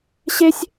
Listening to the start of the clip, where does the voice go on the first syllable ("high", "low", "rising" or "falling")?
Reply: high